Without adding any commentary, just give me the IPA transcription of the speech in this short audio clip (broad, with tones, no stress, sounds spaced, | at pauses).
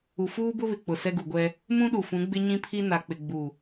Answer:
u˨ f uː˦ b ʊ˦ β ɪ˨ k͡p ʊ˨ s ɛ˦ ɡ u˨ ɡʷ ɛ˦ | m ũ˦ ɗ u˨ f ũ˨˦ ɡ͡b ɪ˦ ɲ ĩ˦ pʰ i˦ n a˨ k͡p ɪ˨ ɡ͡b u˨